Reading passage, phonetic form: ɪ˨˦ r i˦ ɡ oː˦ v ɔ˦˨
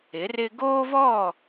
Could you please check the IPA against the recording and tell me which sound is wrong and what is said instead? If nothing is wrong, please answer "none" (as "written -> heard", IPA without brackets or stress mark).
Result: i˦ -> ɪ˦